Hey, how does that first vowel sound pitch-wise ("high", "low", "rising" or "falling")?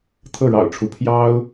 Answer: falling